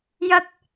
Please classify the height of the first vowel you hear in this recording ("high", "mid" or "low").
low